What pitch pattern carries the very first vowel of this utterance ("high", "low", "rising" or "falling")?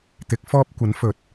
rising